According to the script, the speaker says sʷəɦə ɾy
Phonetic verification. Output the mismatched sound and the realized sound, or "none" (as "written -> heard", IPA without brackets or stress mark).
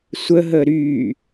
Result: none